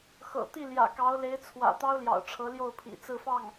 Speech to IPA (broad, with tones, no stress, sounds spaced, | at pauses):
x ɤ̰˨˩ t̪ i˥˩ l j ä̰˨˩ k ɑ˧˥ ʊ̯ l e˧˥ ɪ̯ t͡sʰ w ä̰˨˩ t̪ ɑ˥ ʊ̯ l j ɑ̰˨˩ ʊ̯ ʈ͡ʂʰ ɤ˧˥ l j o˥˩ ʊ̯ pʰ ḭ˨˩ t͡s ɹ̩˥˧ f ɑ˥˩ ŋ